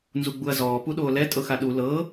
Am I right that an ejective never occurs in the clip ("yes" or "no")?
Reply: no